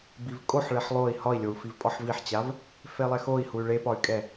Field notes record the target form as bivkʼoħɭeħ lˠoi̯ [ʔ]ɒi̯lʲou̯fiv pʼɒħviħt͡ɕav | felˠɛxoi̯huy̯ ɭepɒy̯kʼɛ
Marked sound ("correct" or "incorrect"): incorrect